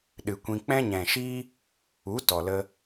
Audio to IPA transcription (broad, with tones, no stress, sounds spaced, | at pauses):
ɗ ɨ˨ kʷ ĩ˧ k͡p ɛ̃˦ ɲ ɛ̃˨ ʃ iː˦ | u˨˦ t ɔ˨ l ə˧